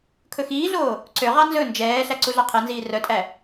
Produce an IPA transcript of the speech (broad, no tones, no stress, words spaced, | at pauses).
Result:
kʰɵxiːɮoː | ǀøʁɑ nzɵ nd͡ʒɛːɬæ ǀuɮɑqʰɛnziː rœtʼæ